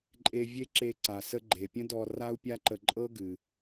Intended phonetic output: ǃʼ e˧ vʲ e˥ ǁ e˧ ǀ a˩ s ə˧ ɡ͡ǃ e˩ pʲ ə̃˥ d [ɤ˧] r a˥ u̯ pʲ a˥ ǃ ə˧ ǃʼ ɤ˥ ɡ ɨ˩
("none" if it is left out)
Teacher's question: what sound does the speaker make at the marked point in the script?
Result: ɔ˧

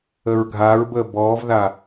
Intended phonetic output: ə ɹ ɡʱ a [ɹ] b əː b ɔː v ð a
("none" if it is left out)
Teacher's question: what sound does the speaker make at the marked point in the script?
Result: ɹ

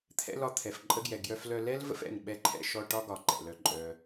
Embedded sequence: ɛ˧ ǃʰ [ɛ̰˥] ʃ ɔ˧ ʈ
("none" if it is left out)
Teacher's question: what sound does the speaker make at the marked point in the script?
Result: ɛ̰˧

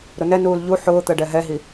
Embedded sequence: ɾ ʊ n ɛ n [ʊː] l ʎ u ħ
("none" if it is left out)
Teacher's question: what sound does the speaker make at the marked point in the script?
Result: uː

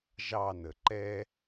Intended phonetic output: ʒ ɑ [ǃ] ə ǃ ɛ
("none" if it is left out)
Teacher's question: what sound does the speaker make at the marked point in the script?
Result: n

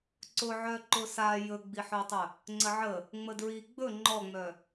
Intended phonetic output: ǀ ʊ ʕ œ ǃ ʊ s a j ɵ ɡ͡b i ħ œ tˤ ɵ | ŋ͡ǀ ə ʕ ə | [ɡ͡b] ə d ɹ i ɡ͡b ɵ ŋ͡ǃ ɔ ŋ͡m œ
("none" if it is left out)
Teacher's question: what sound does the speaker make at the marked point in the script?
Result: ŋ͡m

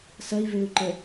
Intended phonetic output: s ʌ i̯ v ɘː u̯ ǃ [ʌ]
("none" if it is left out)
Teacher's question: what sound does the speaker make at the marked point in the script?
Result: ə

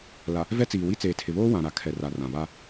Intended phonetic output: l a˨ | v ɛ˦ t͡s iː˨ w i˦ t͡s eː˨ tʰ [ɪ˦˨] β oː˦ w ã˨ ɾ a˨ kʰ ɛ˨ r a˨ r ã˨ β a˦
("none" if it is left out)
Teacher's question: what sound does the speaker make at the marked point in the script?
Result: ɪ˨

